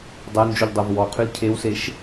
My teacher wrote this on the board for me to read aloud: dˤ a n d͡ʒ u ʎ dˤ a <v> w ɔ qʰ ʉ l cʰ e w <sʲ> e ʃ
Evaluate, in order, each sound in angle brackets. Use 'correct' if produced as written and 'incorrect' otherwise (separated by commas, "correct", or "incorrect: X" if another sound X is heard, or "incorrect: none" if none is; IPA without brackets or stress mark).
correct, incorrect: s